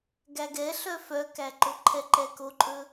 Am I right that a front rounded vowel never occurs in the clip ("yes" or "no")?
no